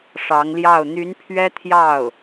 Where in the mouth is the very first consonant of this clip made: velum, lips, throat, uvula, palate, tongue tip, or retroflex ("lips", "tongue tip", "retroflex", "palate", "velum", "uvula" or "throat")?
retroflex